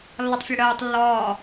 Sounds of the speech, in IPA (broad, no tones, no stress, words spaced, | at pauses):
lːɒtˤfʲɜɽɜːtˤ lːɒː